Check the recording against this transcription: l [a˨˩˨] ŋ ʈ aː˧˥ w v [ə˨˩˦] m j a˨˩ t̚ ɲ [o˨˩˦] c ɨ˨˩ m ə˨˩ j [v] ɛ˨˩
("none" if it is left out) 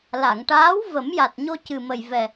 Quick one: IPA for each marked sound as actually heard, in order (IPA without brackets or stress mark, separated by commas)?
a˨˩˨, ə˨˩˦, o˧, v